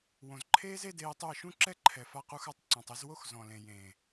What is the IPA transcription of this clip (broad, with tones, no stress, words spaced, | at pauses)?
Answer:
wõ˨zǃʰeː˦z e˦deː˧tˤʊ˦˨ə̯ ʃũ˦ǁɛ˦ǃʰɛ˨ fa˧qu˧xa˧tˤ ǀɔ̃˨tˤ e˧zwo˦x zɔ̃˨lẽ˨ jẽː˨